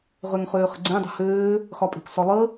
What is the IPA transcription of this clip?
ʁøŋχøːχə̤ɡ͡ǀẽ dˤə̤høː | xɒpʼe̤kʷsɒlˠə

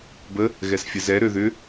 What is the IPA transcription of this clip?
bə | ɣɛsfʲəzɛ ɾøðʏ

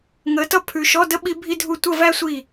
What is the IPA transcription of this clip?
ŋəː˨˦tʌ˥˧ pʰʉ˨ʃɔ˧˥˧də˥ ɓi˥bʱi˥dʱu˥˩ tʷə˥˧væ˥ sʷi˥˩

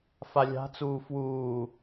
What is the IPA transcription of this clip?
falʲa̤t͡suː fwuː

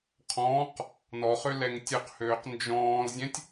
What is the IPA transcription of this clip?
qʰɔ̃ːq | nɔχø lɛŋtʲøqhøːq nd͡ʒɔ̃ːlzʲɛ̃tʲ

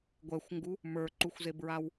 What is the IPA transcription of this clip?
ɡʷɛxʷŋɡu | mə˞ǃuxʷzebɹaw

